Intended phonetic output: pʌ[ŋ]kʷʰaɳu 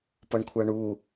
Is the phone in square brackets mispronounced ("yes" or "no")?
yes